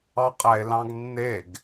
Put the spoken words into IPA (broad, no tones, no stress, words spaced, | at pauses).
ɑqʼæe̯lɑ̃ɡnːeɡ